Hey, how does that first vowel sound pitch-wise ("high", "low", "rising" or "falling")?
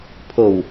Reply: low